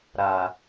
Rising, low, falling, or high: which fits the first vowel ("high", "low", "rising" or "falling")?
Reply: low